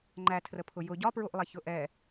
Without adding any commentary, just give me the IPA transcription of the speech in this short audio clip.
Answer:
ŋ͡ǃætʰrəpʰʊ jʊ ɟɒpɹuʔlˠɛ çʊʔɛ

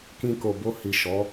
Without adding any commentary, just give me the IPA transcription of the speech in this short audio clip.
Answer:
kĩ˧ko˨bo˧hi˨ ʃɔ˨˦

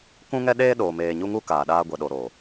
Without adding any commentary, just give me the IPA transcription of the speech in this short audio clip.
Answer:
kũ˦ŋɛ˦ɗeː˦ ɗoː˨meː˨ɲu˦ŋu˦ kaː˨ɗaː˦ ɡʷɛ˨ɗo˨ɾoː˨

